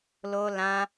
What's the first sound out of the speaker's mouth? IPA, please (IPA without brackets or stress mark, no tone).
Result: l